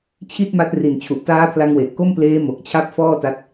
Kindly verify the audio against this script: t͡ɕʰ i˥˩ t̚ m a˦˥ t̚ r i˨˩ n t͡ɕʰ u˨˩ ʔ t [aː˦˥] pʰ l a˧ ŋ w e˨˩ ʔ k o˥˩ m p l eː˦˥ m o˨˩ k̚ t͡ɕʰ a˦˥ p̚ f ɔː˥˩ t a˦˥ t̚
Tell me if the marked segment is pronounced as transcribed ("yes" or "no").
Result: yes